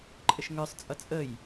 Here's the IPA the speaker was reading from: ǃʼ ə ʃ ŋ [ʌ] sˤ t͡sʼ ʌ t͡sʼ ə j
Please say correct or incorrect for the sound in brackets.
incorrect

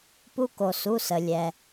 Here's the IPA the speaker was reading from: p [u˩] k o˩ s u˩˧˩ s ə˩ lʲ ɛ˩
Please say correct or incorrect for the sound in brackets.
incorrect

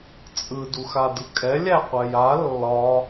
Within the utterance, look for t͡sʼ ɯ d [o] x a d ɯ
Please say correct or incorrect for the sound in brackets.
incorrect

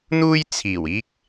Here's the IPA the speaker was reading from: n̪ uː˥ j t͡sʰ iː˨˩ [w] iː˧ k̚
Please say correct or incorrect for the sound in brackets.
correct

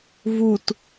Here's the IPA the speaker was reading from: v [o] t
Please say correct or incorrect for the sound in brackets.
incorrect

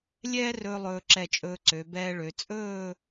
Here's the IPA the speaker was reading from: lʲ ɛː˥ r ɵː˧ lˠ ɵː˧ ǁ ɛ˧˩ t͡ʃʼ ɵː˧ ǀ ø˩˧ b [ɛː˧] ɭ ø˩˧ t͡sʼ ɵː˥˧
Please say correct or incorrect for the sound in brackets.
correct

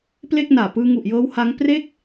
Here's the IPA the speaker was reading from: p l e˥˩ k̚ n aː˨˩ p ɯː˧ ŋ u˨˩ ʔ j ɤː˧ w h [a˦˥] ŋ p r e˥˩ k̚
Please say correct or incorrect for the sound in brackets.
correct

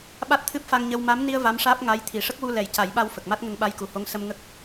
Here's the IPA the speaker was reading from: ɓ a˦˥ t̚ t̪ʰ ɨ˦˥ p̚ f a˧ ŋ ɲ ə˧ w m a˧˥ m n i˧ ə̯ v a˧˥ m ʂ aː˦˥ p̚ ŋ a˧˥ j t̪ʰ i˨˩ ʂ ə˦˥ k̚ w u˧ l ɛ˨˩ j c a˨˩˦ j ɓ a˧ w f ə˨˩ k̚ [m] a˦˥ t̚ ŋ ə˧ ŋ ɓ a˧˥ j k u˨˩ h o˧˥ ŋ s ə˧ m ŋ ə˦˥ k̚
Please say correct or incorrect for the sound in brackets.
correct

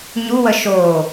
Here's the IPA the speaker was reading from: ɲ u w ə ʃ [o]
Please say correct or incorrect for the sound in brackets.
correct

